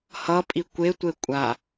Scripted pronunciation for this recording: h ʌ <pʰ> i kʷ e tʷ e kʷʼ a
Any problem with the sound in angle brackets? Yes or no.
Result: yes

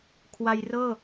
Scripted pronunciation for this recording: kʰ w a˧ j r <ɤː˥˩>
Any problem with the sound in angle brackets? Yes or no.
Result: no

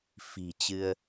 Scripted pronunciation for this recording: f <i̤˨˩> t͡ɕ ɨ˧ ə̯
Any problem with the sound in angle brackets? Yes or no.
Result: no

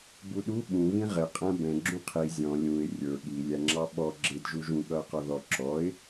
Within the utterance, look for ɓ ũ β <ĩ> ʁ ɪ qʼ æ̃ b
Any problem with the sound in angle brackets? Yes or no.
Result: no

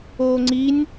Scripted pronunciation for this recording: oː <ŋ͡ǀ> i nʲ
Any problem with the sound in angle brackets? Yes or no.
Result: no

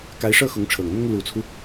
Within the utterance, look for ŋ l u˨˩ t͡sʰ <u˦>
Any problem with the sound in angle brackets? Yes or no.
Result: no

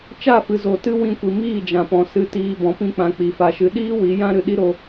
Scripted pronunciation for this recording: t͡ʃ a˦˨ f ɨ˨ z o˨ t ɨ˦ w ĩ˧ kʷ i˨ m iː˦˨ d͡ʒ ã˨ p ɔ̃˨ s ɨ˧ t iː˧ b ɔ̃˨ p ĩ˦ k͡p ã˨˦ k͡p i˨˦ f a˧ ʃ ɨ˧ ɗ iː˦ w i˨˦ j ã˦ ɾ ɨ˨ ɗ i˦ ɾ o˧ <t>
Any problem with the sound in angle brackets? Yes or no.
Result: yes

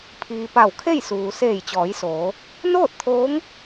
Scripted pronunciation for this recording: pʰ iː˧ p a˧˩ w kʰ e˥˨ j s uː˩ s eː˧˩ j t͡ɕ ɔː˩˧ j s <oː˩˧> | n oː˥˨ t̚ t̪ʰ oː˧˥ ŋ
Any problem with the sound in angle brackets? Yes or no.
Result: no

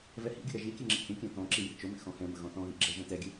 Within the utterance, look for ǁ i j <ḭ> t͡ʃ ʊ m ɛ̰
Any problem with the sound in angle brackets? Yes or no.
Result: no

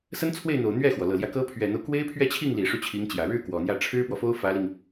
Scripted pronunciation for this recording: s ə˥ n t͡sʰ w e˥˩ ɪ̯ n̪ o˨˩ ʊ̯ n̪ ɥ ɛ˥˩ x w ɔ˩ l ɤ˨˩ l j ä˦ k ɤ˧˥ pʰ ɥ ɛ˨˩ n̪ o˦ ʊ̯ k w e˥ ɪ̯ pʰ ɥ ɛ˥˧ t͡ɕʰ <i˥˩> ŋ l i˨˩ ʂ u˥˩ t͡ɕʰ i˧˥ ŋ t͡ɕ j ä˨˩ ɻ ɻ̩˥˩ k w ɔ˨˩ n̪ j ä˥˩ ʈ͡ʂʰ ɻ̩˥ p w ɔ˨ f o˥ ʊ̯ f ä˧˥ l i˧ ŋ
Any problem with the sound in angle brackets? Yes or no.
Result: no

